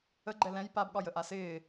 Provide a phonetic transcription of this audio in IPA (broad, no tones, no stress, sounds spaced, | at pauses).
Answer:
ə ɡ͡ǃ ɛ l ɛ̃ j p a b ɠ ɒ j ə ʔ a s ɪː